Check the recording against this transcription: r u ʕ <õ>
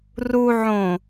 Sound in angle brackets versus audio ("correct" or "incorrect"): correct